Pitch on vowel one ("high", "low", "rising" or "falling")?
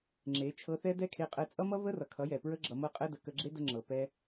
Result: rising